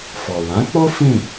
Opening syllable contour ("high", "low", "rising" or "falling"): low